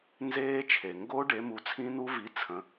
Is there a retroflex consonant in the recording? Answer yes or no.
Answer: yes